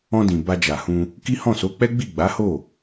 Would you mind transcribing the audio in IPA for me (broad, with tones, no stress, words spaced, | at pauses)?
ɔ̃˧dĩ˨ ba˧d͡ʒa˨hũ˧ | ki˦hɔ̃˦˨so˨˦k͡pɛ˦ ɡ͡bi˦˨ɡ͡ba˨˦ho˦˨